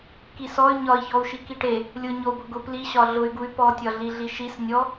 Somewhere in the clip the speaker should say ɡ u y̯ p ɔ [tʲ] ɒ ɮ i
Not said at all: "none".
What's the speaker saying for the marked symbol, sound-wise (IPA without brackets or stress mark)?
tʲ